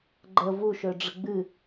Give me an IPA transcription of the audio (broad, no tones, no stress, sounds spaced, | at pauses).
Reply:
ɡ͡ǃ ə v u ʃ ø ɖ͡ʐ ə ɡ͡b ɨ